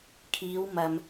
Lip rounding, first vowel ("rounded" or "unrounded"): unrounded